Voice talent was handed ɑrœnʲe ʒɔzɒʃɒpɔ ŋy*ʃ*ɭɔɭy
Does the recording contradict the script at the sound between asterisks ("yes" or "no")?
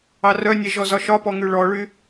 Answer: yes